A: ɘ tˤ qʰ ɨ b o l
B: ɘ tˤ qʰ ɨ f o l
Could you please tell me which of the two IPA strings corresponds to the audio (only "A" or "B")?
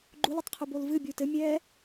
A